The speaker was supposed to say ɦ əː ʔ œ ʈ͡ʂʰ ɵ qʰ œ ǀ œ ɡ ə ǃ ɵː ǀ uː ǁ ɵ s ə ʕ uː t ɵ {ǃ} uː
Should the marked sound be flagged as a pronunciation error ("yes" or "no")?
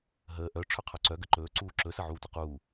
yes